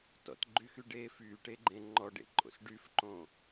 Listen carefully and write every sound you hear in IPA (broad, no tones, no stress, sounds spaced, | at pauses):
t ɔ̰ t ɡ͡ǃ y x y ɖ eː f yː ʈ e ɡ͡ǃ ẽ ŋ͡ǃ ɔ ɖ ḛ ǃʼ o̰ s ɖ y f ǃ õ